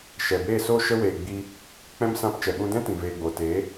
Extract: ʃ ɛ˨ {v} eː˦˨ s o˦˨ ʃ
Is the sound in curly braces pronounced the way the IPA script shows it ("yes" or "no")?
no